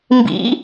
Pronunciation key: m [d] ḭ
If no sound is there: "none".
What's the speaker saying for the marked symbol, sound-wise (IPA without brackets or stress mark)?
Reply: b